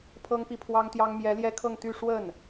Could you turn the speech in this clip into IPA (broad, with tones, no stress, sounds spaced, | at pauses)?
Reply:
pʰ ɤ˥ ŋ p i˥˩ pʰ w ɑ˥ ŋ t̪ j ɑ˥ ŋ m j ɛ˧˥ l j ɛ˥ kʰ ɤ˥˧ ŋ t̪ y˥˧ ʂ w ə˥˩ n